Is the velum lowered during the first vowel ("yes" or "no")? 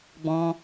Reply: yes